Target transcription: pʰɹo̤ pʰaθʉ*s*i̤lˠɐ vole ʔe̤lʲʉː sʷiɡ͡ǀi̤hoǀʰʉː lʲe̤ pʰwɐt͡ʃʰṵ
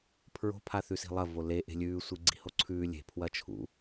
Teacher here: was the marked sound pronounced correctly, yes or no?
yes